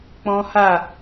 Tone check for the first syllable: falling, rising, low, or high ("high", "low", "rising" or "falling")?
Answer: high